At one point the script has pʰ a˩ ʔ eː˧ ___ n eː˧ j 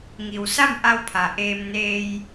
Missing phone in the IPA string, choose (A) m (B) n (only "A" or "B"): A